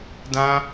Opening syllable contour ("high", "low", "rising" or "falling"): high